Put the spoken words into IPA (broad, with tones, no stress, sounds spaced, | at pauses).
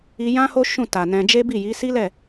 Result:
i˧ j ã˦ h o˦ ʃ ũ˦˨ t a˨ n ɛ̃˧ d͡ʒ e˦ b i˦˨ j i˨˦ s i˦ l ɛ˦˨